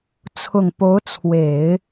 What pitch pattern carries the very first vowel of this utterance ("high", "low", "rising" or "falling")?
low